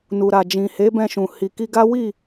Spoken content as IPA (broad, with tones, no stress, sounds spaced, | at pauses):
n u˨ ɾ a˨ d͡ʒ ĩ˨ h e˨˦ b ɛ̃˧ ʃ ũ˨ h i˨ k i˧ ɡ a˦ w i˦˨